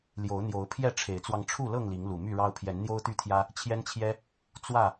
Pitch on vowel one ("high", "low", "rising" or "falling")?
rising